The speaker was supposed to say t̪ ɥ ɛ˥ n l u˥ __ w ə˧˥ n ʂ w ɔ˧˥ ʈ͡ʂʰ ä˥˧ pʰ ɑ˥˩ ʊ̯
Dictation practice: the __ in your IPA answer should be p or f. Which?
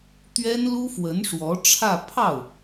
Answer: f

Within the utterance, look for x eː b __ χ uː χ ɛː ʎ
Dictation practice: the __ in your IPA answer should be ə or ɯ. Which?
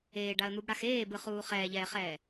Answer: ɯ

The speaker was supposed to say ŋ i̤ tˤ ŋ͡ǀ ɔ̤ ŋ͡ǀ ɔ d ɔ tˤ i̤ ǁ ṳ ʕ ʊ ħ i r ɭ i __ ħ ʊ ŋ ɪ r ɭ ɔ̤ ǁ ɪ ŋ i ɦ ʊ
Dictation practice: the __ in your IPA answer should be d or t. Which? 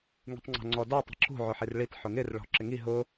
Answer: t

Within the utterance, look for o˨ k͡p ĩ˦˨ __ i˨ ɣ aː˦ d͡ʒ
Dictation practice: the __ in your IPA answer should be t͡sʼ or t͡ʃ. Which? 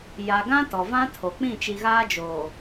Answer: t͡ʃ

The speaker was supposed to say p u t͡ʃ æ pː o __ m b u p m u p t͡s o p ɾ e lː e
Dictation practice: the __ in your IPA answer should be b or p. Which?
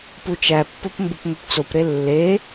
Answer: p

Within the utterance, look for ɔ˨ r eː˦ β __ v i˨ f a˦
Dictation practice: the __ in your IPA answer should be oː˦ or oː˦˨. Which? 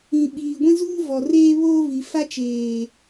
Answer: oː˦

